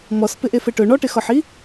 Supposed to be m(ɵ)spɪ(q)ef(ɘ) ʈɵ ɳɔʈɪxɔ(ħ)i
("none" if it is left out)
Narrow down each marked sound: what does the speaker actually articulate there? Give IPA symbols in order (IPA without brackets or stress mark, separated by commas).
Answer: ɔ, ʔ, ɘ, ħ